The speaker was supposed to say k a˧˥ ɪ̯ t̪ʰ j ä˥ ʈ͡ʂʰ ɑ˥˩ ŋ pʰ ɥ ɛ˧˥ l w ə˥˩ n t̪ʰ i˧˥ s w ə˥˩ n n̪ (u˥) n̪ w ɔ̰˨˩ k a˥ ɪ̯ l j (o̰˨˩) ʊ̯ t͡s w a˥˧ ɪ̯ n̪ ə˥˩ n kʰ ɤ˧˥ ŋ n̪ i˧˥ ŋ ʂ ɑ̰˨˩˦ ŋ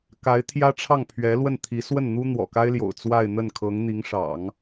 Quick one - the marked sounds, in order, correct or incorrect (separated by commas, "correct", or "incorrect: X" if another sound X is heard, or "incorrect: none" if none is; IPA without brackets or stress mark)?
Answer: correct, correct